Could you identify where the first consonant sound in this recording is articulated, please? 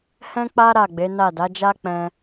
glottal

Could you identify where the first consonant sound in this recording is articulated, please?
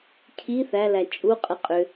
palatal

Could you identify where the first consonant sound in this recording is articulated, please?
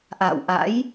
glottal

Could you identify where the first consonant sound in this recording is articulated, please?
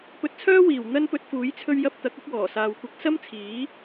labial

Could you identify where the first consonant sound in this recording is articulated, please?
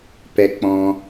labial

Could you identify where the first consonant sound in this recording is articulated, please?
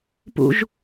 labial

